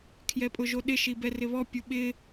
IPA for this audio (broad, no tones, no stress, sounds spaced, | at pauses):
kʰ j ɛ pʼ ʊ ʒ o ɗ ɪ ʃ i b ɛ r ɪ β ɔ pʲ u ɓ ɪ